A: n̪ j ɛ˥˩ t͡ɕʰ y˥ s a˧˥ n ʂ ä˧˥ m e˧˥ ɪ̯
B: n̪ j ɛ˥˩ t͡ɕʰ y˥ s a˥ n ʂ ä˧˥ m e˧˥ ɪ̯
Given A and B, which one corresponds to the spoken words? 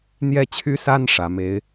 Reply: B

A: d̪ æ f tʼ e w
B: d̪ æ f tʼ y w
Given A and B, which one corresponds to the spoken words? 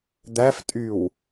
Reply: B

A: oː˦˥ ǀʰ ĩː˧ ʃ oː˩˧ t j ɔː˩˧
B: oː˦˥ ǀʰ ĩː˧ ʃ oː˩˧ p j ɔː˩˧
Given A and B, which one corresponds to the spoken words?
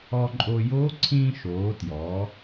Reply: A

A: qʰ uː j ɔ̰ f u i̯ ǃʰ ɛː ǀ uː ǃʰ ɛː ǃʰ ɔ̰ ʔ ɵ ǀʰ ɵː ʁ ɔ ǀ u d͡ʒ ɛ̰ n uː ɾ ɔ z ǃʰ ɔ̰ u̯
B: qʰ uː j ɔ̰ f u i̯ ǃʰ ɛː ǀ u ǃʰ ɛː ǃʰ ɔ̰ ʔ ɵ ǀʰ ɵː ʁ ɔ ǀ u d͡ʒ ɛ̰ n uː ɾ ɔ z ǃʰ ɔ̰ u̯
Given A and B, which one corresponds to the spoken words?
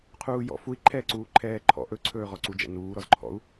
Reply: A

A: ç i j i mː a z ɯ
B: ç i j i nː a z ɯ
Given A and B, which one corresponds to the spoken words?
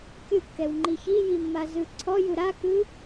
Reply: A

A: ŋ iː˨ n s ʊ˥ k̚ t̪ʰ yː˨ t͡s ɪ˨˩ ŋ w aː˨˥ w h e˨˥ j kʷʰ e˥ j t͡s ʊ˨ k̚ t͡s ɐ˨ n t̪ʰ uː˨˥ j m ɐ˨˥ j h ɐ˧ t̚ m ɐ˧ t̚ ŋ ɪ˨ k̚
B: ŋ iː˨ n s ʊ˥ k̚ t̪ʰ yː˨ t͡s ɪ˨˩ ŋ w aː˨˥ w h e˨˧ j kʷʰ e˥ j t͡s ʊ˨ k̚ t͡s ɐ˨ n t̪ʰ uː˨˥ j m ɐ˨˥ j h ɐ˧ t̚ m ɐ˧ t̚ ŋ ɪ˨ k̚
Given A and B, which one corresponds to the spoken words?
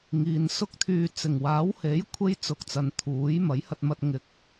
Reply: A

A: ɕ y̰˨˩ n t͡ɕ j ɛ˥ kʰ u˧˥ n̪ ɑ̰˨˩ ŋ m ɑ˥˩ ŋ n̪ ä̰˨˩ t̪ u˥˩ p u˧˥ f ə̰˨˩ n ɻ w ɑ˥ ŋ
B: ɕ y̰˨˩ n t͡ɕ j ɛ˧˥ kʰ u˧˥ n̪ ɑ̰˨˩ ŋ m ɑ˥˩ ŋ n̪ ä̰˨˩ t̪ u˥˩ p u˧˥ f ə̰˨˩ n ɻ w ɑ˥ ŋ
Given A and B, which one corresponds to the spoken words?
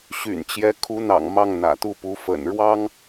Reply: B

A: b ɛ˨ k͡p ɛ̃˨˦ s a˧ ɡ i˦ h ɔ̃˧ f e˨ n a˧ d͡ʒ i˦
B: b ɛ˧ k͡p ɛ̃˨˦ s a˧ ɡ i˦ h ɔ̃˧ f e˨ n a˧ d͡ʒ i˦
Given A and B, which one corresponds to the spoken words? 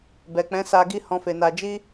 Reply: A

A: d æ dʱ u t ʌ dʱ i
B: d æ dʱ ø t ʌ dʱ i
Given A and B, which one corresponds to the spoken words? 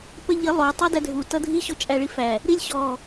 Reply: A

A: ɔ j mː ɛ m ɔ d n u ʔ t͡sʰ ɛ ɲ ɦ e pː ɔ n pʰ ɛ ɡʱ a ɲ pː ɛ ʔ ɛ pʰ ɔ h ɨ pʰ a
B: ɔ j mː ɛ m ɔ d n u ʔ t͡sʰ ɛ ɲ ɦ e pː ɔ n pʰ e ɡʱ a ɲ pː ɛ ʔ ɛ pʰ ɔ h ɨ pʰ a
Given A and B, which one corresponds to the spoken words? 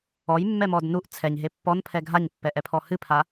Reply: A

